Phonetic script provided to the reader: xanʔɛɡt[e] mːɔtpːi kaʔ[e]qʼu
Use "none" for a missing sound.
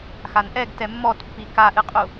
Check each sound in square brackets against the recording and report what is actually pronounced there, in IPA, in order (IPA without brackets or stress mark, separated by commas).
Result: ɛ, ɨ